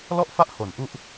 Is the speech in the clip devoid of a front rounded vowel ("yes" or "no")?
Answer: yes